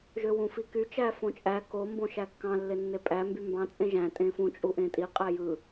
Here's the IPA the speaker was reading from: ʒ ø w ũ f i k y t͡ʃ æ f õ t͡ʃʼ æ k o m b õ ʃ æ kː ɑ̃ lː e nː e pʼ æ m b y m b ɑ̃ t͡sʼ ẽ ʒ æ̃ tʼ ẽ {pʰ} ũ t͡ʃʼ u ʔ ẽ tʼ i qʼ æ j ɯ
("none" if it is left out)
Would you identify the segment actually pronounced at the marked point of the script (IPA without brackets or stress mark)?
f